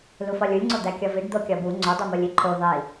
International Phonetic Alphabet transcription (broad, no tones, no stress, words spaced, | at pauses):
lufɒlʲulʲŋ͡ǀo d̪ækʲɒviɖ d̪okʲɒbu ŋ͡ǀodˤimolʲ iǃʰu ðˤi